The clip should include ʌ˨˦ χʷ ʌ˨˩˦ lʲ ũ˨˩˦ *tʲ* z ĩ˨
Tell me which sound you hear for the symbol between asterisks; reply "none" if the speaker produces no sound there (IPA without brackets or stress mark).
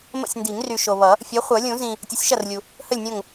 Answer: none